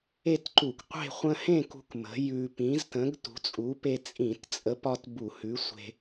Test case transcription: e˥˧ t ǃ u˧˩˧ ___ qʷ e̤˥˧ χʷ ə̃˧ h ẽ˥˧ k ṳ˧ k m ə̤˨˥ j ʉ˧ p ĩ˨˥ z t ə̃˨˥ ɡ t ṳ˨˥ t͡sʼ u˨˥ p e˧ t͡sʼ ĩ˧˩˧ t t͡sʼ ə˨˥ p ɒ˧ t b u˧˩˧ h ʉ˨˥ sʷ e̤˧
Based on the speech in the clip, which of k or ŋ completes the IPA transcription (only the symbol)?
k